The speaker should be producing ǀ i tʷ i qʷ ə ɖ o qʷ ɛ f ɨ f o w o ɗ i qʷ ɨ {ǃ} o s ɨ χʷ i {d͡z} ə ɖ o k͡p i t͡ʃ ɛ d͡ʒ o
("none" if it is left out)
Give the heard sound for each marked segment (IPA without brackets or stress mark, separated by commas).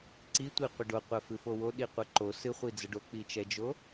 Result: ǃ, d͡z